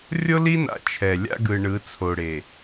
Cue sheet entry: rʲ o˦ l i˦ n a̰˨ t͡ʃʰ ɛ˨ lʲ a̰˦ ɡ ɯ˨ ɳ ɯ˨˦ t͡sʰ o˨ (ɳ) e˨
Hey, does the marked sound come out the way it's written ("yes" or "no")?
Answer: no